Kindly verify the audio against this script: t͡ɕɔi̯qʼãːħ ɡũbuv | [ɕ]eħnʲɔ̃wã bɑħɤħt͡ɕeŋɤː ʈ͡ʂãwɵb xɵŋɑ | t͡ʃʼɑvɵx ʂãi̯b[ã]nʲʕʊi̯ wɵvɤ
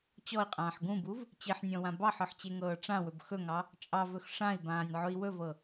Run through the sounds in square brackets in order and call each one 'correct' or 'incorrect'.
incorrect: t͡ɕ, incorrect: ãː

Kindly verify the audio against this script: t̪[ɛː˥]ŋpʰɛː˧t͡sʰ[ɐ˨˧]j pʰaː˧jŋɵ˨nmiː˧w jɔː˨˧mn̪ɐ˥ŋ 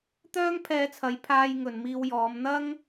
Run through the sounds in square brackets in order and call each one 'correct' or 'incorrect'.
incorrect: œː˥, correct

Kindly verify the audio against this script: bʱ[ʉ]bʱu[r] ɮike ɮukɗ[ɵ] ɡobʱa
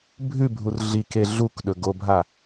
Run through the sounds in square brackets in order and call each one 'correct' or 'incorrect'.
correct, correct, correct

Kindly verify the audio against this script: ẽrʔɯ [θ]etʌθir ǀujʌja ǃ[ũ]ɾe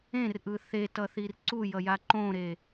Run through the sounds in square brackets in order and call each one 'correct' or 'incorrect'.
correct, incorrect: õ

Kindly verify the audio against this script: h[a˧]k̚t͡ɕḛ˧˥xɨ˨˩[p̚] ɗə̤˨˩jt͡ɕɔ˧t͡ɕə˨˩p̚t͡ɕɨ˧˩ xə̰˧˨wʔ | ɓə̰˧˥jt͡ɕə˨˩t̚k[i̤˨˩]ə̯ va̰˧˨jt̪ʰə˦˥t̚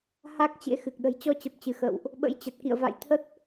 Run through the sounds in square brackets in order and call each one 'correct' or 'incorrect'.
incorrect: a˦˥, incorrect: k̚, incorrect: ḭ˧˨

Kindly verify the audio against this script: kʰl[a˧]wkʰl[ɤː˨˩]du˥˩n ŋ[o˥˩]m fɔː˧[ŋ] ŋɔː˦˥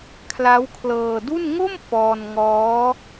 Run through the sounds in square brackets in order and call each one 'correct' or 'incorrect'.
incorrect: a˦˥, incorrect: ɤː˧, correct, incorrect: n

